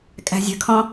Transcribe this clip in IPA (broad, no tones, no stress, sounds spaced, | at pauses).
kʼ æ̤ zʲ ə̤ kʰ ɔ̃